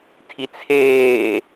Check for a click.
absent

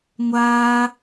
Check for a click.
absent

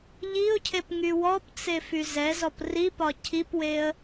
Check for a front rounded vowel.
present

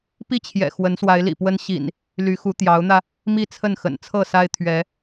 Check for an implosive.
absent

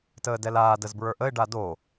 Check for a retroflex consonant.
present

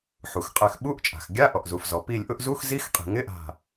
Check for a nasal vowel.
absent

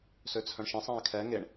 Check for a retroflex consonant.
present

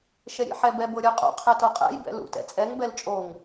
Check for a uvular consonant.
present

